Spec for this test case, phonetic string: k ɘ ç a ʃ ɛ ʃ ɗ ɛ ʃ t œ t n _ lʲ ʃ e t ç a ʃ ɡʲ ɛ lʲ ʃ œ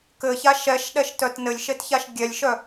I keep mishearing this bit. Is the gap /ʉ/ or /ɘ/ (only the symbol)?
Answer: ɘ